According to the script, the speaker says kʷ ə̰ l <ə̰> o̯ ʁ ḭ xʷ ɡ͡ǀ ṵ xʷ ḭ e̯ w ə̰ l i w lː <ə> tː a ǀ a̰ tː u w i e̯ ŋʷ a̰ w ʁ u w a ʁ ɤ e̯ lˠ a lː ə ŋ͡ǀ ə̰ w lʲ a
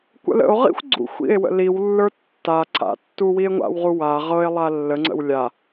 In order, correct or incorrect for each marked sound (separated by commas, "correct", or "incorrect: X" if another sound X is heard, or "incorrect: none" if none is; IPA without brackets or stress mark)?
correct, incorrect: ə˞